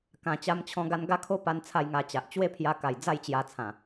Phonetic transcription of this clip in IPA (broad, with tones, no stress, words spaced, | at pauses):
kã˨˩t͡ɕa˧mt͡ɕʰɔ̃˧ ɡa˧nɡa˦kʰo˦pa˧n t͡sʰa˥˧jŋa˧t͡ɕa˨ʔ t͡ɕwe˦pʰja˧ka˨˩j d͡za˥˧jt͡ɕja˧ t͡sʰã˨˩